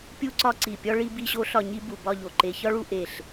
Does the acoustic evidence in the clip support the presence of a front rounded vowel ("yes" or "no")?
no